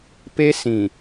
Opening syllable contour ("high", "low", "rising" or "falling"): high